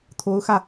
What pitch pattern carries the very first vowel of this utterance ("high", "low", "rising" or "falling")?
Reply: rising